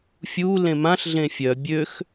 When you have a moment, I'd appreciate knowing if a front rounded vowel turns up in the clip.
yes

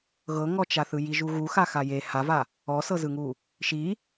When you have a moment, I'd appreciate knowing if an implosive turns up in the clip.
no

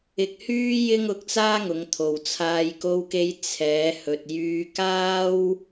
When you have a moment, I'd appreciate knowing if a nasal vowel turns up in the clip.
no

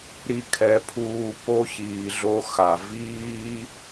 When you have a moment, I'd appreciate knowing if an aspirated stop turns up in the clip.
yes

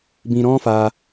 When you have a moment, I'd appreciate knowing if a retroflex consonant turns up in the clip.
no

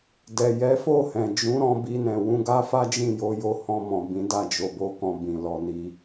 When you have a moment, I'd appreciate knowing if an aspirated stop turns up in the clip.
no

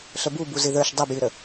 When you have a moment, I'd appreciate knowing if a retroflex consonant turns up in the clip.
no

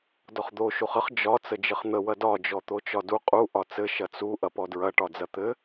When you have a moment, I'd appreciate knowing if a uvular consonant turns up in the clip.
yes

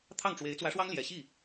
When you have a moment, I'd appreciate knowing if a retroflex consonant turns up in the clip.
yes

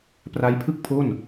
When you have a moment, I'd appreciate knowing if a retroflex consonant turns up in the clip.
no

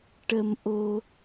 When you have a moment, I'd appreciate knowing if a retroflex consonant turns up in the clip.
yes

